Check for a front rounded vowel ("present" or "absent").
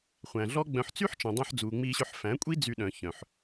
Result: present